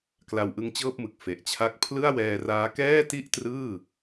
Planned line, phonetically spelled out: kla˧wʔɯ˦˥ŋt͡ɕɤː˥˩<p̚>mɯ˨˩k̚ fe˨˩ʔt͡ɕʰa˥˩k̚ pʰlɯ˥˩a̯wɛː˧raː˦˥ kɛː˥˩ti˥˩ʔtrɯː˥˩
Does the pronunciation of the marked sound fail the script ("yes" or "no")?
no